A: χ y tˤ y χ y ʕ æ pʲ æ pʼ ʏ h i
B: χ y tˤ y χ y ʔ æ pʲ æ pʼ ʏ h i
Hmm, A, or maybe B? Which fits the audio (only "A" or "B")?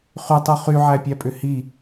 A